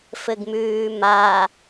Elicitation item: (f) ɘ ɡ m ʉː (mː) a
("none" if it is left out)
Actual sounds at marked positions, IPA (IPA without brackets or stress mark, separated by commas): f, m